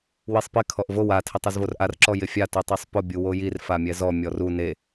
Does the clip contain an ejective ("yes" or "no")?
no